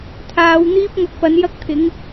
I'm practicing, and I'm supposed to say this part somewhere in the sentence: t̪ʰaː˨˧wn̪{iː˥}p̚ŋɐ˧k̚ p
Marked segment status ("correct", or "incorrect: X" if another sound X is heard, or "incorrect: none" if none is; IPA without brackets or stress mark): correct